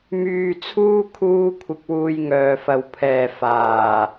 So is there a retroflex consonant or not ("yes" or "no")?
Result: no